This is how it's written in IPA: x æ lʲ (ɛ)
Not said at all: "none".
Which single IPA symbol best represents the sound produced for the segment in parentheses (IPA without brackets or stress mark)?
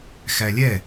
ɛ